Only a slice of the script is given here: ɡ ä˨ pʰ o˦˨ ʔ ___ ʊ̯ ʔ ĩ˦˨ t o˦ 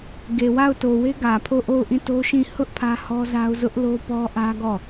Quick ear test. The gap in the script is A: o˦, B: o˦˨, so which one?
B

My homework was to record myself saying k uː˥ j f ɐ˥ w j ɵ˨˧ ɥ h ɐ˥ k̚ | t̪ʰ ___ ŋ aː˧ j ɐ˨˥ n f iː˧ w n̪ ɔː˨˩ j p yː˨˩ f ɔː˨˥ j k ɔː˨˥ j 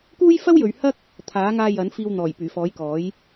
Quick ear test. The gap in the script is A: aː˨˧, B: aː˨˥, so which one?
B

